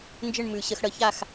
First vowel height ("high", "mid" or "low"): high